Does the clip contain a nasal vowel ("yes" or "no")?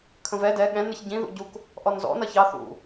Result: yes